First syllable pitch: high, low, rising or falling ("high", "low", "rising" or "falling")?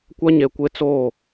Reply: high